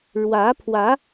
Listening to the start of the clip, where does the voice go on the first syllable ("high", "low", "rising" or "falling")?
rising